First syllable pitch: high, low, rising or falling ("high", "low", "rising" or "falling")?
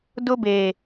high